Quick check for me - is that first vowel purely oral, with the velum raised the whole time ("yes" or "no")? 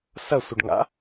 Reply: yes